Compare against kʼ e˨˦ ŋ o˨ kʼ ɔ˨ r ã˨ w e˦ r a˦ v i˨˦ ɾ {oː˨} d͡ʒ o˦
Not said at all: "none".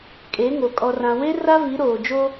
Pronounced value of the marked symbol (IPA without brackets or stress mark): oː˨